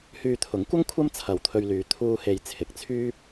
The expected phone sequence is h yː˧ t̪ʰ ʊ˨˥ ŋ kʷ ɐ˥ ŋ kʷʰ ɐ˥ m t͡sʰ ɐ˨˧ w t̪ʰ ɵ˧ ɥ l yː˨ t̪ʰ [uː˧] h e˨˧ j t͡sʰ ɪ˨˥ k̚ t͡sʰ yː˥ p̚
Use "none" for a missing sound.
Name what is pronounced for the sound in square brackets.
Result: uː˧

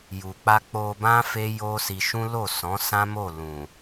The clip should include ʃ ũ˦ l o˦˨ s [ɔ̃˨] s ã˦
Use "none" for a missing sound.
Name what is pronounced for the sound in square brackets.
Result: ɔ̃˨˦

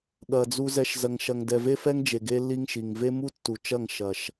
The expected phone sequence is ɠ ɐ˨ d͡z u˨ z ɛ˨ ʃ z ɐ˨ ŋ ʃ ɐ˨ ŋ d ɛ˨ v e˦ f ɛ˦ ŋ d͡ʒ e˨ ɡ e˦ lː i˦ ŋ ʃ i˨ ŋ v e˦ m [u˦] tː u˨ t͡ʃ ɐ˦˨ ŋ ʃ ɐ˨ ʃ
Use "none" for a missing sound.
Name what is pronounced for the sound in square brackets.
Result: u˦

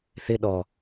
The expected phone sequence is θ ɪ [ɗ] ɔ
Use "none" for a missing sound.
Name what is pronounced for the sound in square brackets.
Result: ɗ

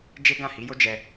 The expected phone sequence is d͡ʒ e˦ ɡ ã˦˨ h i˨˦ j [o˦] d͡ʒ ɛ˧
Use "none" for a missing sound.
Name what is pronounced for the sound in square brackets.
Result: o˦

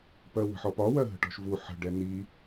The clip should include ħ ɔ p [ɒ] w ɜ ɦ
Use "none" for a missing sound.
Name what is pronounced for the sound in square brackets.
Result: ɒ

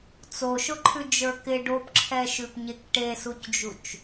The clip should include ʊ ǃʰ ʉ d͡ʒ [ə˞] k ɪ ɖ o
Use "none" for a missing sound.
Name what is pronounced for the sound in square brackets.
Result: ə˞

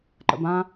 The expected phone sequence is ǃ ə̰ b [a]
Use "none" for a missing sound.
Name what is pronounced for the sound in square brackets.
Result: ã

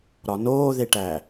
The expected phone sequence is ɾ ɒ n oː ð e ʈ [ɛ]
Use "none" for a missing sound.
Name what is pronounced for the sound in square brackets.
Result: æ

